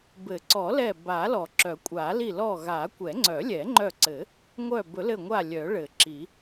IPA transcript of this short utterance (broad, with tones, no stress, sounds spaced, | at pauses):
b ɘ˨˩˦ ǀ ɔ˨˩˦ l ɛ˧˩ b a˨˩˦ l ɔ˨˩˦ ǁ œ˨˩˦ kʷʼ a˨˩˦ l i˧˩ l ɔ˧˩ ɣ a˨˩˦ kʷ ɛ˨˩˦ ŋ͡ǀ œ˨˩˦ lʲ ɛ˨˩˦ ŋ͡ǃ œ˧˩ ǀ ɘ˨˩˦ | ŋʷ œ˧˩ b ɵ˨˩˦ l ɘ˧˩ ŋʷ a˧˩ lʲ œ˨˩˦ ɭ ɘ˨˩˦ ǁ i˨˩˦